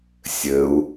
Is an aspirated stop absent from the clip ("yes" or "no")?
yes